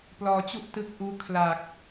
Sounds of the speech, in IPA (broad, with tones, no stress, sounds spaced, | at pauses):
p l ɔː˧ t͡ɕ u˥˩ ʔ t ɯ˦˥ k̚ ʔ uː˦˥ kʰ l aː˨˩ k̚